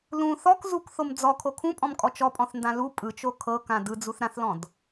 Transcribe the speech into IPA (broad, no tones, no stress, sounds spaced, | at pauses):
l ũ θ ɔ k z u k θ o m d͡z ɔ kʰ o kʰ ũ pʼ ɔ̃ m kʼ ɔ t͡ʃ ɔ pʼ ɔ̃ θ n d ã l u pʼ ɯ t͡ʃ o kʰ ɤ k ã d ɯ d͡z u θ ɾ ã θ l ɔ̃ d